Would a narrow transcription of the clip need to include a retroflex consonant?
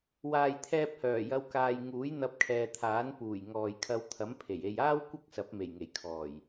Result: no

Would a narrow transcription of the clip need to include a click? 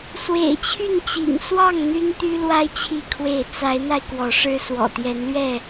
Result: no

